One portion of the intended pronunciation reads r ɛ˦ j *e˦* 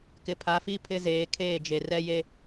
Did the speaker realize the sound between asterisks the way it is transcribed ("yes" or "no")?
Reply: yes